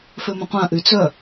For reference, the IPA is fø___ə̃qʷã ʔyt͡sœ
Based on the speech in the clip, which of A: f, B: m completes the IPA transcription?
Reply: B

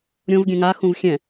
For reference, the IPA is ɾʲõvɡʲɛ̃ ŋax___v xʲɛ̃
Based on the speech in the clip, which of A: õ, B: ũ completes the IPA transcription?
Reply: B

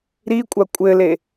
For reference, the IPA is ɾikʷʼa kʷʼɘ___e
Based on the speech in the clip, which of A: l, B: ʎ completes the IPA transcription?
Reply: A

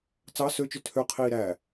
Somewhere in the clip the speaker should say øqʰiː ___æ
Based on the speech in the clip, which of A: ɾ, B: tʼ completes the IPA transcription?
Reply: A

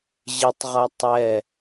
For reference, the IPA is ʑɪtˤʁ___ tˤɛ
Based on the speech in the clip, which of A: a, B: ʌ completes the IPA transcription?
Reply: B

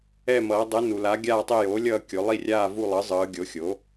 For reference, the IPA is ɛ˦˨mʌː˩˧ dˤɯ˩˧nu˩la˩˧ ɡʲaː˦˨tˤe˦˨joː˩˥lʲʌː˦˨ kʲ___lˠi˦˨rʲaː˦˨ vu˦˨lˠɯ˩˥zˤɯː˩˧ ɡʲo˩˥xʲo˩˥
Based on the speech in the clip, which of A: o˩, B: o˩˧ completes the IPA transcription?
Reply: B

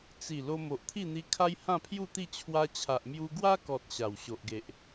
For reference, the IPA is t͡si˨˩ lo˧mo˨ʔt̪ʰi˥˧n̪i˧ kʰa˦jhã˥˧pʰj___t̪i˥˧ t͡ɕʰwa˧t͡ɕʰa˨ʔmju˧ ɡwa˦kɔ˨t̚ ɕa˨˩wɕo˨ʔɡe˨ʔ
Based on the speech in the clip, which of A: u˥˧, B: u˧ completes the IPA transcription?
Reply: A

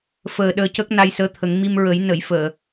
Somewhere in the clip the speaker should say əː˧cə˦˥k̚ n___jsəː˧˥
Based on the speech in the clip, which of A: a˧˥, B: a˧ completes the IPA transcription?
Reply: B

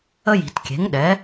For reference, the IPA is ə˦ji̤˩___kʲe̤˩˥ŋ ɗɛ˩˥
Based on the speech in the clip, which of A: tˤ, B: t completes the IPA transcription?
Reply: B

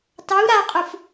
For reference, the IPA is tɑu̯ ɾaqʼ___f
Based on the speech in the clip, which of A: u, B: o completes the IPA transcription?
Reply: A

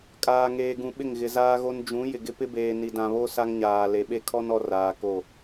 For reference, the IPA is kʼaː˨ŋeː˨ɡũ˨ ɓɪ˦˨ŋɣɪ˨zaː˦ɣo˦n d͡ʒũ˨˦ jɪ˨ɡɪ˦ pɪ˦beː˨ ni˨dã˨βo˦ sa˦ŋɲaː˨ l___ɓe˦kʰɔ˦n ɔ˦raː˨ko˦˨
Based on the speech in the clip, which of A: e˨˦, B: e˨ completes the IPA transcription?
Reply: B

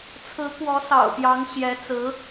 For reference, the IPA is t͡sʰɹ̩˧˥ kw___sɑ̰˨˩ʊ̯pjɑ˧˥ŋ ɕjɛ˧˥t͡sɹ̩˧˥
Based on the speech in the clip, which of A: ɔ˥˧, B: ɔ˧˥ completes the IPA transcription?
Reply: B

